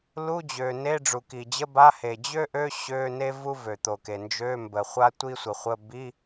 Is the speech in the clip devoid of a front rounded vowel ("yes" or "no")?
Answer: no